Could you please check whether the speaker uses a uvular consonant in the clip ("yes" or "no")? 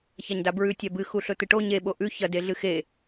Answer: no